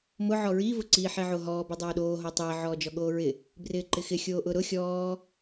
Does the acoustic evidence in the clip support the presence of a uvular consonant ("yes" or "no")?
no